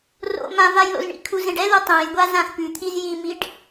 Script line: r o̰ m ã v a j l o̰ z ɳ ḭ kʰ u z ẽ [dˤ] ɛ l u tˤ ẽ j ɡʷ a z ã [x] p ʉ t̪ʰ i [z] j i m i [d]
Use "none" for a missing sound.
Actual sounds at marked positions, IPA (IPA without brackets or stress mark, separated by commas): ɖ, x, z, ɖ